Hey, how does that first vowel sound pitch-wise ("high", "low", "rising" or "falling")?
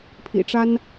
low